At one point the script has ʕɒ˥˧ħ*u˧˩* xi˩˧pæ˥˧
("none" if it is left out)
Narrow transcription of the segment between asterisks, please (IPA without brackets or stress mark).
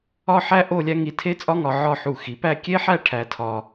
u˧˩